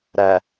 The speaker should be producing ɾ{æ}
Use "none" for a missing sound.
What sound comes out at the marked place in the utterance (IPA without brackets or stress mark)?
æ